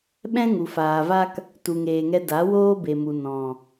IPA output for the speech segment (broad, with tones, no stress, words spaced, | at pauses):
ɓɛ̃˦ ŋu˨faː˨va˦k | tu˨ŋeː˨ŋɛ˧ da˨˦woː˦be˨mu˨ nɔ̃˨